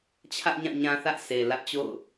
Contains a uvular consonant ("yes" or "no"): no